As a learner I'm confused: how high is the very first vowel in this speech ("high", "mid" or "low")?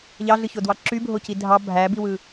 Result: low